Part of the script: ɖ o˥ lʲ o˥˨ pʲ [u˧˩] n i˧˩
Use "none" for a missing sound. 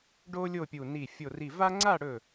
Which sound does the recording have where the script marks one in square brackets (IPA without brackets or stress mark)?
u˧˩